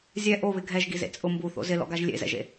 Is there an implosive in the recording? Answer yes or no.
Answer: no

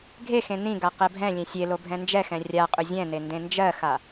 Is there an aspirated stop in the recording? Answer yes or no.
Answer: no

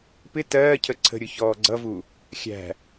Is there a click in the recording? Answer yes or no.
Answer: yes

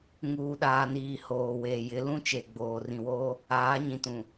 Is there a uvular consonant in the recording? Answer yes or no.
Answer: no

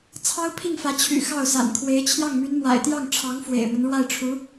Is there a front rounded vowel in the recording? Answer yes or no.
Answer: yes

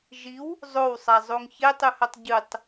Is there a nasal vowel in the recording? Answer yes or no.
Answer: no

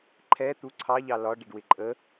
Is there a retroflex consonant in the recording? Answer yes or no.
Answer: yes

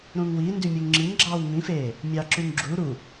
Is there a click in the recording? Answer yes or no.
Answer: yes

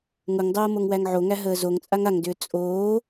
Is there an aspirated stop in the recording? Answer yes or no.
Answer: no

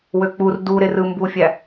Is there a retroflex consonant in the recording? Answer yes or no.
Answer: no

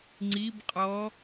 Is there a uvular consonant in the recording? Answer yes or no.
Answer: yes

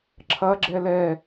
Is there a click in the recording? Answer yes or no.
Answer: yes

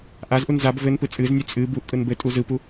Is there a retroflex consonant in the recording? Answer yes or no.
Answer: no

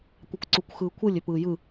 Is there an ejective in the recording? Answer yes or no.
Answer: no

